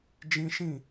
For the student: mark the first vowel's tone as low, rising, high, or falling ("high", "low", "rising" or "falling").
high